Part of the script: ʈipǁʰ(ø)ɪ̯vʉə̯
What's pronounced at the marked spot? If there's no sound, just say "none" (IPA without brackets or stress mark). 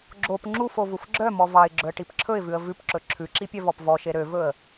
ɵ